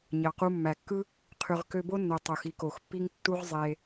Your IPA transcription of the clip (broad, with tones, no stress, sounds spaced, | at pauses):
ɲ ɑ˨ q u˧ mː æ˨ kː ɯ˦ | qʰ y˨ ʁ k ø˧ b o˦ nː o˨ tˤ o˨ x i˦ k o˨ x pː i˦ ŋ tː u˦ ʁ zˤ e˧